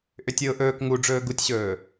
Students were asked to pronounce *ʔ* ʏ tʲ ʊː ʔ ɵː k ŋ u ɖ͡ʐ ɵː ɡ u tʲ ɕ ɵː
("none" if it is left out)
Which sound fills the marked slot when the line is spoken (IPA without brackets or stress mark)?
ʔ